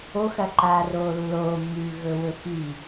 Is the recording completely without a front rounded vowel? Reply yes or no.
yes